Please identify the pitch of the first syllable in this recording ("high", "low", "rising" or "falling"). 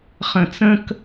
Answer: low